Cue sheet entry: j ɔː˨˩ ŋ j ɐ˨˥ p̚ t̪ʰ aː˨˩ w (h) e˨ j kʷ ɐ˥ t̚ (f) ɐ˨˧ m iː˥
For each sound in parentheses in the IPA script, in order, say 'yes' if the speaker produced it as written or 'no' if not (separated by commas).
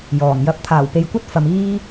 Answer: no, yes